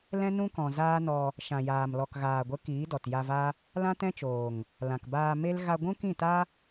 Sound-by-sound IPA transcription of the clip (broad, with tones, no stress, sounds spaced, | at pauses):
l ɛ̃˦ n ũ˦ k ɔ̃˨ z aː˦ n ɔ˧ | ʃ ã˨ j aː˨ m l ɔ˨ k ɣ aː˨ ɡʷ ə˨˦ k iː˨˦ d ɔ˨ t j a˧ v a˦ | l ã˦ t ɛ̃˦ t͡ʃ oː˨ ŋ | l ã˨ k b aː˧ m e˦ l ɣ a˧ ɡʷ ũ˦ k ĩ˦˨ t a˦